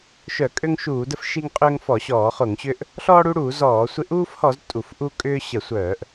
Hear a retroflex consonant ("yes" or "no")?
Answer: yes